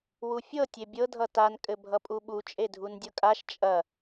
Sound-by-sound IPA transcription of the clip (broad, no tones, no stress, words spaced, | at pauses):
wufʲɤ tʲebʲɤ dʱʌtan kʼɘbʱʌpʼuɓu t͡ʃʼedʱundʲɤkʼaʃ t͡ʃʼɐ